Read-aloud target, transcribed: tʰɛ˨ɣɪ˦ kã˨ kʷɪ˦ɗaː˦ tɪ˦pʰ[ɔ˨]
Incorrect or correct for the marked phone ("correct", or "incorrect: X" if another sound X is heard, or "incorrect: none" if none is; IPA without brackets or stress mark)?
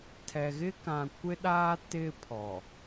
correct